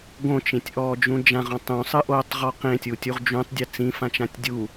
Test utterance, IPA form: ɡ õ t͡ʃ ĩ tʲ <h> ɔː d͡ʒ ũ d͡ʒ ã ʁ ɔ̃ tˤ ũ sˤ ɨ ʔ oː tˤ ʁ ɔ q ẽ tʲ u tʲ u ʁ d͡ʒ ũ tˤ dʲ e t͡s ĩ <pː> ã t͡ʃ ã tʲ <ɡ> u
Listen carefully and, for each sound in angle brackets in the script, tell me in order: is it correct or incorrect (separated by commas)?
incorrect, incorrect, incorrect